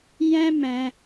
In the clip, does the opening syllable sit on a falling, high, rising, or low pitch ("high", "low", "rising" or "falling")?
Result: high